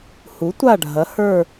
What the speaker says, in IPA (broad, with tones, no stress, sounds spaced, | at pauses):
h u˨˥ tʷ a˦˨ ɖʱ ɐ˨˥ h ə˞˦˨